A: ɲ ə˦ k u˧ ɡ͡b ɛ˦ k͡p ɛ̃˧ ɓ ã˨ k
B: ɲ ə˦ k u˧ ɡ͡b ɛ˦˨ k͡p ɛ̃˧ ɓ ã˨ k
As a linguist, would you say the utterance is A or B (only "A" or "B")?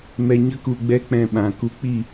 A